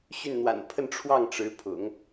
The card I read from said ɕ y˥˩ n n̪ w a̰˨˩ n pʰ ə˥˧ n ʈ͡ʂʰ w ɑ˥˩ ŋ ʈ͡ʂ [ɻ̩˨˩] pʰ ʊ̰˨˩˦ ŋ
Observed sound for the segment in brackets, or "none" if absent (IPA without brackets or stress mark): ɻ̩˧˥